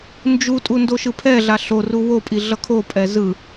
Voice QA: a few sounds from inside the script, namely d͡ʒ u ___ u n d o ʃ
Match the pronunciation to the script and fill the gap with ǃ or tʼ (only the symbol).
tʼ